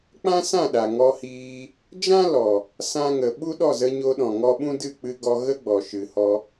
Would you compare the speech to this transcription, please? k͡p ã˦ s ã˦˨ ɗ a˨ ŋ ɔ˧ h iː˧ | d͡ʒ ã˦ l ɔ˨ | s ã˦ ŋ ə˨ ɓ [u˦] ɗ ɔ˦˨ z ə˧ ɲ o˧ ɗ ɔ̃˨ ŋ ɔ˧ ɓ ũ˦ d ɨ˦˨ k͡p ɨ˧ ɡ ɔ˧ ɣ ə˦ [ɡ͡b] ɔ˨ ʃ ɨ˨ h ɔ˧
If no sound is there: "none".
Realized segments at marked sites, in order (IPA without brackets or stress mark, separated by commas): u˦, ɡ͡b